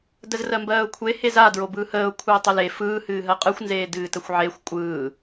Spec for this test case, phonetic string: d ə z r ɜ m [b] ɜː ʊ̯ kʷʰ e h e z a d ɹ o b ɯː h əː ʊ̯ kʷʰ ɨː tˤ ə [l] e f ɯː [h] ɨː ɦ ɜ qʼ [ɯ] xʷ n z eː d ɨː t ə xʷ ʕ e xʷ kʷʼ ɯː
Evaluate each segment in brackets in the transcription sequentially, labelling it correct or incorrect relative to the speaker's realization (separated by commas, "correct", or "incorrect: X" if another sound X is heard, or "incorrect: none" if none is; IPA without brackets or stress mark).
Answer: correct, correct, correct, correct